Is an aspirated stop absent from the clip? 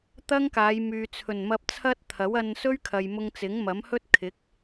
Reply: no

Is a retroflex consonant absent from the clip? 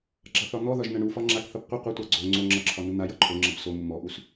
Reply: no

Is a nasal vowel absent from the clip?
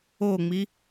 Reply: yes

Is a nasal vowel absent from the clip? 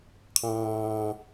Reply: no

